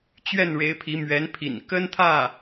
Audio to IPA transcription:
t͡ɕ ɥ ɛ˥˩ n ɻ e˧˥ ɪ̯ pʰ i˧˥ m ɥ ɛ˧˥ n pʰ ḭ˨˩ n k ə˥ n t̪ʰ ä˥˩

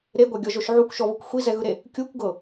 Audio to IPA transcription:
ɾ e ɡʷ a ɡʲ ɔ ʒ o ʃ ʕ u kʷ ʃ ɔ β ɯ kʷ xʷ i z ɛ ɣ ɯ ɾ e | kʲ u kʷ ɡ ɤ

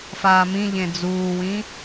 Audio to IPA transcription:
f aː m ĩ ʎ ẽ d͡z uː w ĩ

